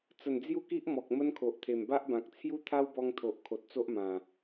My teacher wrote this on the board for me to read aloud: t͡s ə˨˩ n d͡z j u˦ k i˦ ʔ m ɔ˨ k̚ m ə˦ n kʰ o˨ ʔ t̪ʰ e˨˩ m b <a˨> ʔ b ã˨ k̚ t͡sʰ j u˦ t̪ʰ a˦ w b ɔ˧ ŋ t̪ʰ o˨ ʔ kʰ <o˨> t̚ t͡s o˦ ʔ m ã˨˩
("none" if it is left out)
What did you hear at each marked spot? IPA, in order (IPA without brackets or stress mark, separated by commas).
a˦, o˨